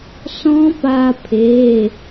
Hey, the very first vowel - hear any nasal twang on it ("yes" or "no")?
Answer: yes